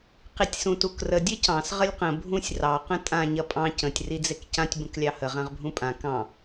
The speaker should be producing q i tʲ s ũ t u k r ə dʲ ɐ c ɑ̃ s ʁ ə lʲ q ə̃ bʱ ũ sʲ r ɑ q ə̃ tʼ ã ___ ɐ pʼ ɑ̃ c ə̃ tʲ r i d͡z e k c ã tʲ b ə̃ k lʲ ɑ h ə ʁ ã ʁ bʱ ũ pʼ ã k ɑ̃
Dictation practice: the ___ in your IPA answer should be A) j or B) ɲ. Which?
B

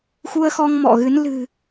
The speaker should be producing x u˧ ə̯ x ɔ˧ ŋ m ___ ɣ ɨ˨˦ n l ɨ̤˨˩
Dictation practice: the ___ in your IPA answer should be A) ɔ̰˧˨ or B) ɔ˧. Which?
A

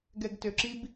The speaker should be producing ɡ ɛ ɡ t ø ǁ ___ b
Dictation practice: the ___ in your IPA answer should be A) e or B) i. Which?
B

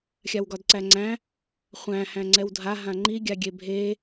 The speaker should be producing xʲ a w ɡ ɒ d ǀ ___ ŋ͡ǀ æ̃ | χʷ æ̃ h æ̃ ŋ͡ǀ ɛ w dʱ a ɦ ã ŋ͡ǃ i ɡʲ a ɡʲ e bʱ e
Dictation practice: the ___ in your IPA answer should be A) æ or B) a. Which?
A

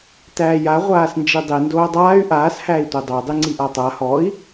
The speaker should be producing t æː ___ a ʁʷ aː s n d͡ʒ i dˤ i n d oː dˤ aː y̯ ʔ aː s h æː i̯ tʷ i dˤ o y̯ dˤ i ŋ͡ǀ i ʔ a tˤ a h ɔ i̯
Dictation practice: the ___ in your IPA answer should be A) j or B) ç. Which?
A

